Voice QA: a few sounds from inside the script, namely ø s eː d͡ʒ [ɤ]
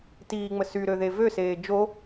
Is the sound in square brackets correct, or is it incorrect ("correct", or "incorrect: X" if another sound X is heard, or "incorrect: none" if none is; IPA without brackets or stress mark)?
incorrect: o